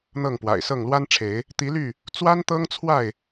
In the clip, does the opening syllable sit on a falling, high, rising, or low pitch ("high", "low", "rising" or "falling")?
falling